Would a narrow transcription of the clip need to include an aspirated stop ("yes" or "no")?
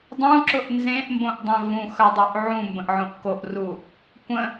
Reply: no